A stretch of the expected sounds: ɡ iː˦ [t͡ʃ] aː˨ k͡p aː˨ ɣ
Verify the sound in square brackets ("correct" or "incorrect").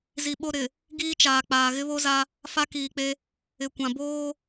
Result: correct